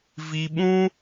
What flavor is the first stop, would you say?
implosive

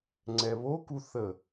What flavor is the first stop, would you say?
click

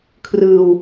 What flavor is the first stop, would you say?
aspirated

